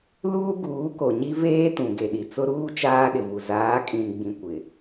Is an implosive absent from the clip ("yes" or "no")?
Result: no